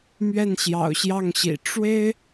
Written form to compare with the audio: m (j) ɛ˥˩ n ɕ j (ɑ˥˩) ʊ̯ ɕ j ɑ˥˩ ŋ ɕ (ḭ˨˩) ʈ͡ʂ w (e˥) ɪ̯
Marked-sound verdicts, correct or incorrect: incorrect: ɥ, incorrect: ɑ̰˨˩, correct, correct

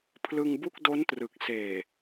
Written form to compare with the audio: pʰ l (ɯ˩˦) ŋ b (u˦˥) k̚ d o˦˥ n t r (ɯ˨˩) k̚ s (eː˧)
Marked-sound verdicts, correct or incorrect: incorrect: ɯ˧, incorrect: u˥˩, correct, incorrect: eː˨˩

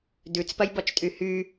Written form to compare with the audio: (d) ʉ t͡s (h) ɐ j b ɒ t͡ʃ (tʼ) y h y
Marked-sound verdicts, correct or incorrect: correct, incorrect: p, correct

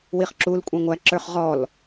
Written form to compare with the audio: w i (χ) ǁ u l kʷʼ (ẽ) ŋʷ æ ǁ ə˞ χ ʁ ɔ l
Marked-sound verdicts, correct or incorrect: correct, incorrect: ɛ̃

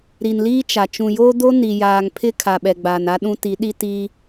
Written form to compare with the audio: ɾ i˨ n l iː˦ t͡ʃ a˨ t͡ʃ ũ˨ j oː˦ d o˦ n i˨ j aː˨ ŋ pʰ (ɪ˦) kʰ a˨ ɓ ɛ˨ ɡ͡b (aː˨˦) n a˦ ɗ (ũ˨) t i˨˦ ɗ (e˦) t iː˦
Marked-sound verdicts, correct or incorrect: correct, incorrect: aː˨, incorrect: ũ˦, incorrect: i˦

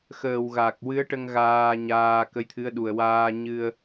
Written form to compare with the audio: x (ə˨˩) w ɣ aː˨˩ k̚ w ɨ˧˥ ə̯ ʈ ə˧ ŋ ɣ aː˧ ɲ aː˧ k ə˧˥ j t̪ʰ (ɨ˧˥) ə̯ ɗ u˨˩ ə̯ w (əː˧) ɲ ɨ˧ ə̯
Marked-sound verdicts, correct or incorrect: incorrect: əː˨˩, correct, incorrect: aː˧

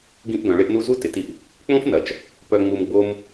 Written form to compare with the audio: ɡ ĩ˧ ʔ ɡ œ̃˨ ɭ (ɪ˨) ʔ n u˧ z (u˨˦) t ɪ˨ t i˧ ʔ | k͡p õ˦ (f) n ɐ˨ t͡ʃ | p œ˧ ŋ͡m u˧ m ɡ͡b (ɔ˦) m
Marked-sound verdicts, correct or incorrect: incorrect: ɪ˧, incorrect: u˦, correct, incorrect: o˦

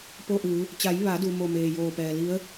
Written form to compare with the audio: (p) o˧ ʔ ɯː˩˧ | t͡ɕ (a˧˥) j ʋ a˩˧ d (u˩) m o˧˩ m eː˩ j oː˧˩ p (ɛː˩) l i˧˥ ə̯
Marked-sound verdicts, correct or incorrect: correct, incorrect: a˩˧, correct, correct

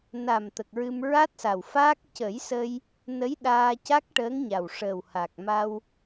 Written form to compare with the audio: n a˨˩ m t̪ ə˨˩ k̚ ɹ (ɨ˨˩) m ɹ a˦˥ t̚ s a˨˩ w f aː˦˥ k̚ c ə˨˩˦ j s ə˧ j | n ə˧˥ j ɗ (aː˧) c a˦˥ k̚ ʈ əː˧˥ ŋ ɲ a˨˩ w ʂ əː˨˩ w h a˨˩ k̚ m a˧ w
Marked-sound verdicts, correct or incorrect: incorrect: ɨ˧, correct

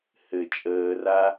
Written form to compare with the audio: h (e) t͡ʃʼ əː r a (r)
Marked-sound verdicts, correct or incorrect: incorrect: ɘ, incorrect: none

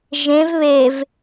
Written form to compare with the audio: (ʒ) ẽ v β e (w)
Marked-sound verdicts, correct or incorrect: correct, incorrect: v

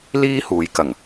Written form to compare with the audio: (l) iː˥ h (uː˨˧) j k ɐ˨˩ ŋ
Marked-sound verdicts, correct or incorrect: correct, correct

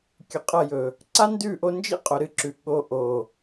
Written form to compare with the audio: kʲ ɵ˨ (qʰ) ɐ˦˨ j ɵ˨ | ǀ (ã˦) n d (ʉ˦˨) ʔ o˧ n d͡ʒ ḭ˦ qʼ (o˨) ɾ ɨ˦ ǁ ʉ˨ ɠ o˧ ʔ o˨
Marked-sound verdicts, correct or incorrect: incorrect: qʼ, incorrect: a˦, correct, correct

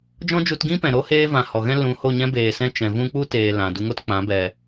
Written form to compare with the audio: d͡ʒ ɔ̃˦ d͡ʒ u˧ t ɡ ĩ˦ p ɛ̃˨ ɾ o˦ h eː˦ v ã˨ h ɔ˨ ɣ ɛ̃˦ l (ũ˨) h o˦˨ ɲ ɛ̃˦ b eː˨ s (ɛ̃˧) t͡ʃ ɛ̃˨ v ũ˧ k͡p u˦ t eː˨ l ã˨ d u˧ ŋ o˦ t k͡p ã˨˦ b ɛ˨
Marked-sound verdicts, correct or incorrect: incorrect: ũ˨˦, correct

